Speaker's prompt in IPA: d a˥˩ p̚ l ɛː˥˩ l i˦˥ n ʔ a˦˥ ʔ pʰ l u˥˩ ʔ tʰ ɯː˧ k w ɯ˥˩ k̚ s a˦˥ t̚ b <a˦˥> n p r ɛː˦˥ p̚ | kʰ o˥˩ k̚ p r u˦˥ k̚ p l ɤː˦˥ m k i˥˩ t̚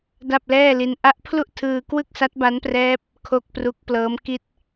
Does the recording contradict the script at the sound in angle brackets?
no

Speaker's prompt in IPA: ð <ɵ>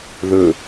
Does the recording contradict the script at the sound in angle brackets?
no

